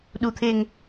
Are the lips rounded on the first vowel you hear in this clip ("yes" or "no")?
yes